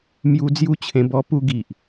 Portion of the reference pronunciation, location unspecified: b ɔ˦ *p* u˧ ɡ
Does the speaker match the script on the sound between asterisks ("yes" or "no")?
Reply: yes